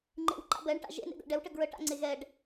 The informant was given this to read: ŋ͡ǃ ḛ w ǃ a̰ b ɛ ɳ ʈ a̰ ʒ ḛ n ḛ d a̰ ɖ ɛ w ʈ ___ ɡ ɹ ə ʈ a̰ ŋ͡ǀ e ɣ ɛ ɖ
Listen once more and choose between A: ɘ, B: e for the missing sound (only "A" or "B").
A